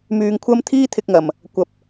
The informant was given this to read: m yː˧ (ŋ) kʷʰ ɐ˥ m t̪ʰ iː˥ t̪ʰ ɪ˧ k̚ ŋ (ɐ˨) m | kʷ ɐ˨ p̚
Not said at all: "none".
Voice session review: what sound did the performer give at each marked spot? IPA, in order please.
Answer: ŋ, ɐ˨

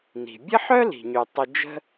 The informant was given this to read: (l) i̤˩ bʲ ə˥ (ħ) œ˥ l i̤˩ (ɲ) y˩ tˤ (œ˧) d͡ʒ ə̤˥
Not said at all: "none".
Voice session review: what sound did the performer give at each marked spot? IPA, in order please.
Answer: n, ħ, ɲ, ə˧

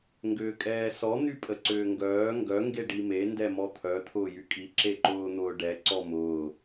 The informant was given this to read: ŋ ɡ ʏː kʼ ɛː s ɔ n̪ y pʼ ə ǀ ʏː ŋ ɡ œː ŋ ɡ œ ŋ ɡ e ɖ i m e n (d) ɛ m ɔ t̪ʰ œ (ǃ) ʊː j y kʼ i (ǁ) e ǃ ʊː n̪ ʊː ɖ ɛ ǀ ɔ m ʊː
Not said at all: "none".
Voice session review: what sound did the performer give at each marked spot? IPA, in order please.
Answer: d, t̪ʰ, ǁ

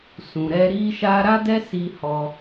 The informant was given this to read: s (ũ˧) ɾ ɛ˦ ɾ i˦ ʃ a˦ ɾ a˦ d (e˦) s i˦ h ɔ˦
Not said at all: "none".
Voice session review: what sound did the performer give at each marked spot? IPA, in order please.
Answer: ũ˧, ɛ˦

